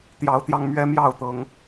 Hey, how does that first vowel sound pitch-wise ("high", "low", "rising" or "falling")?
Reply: rising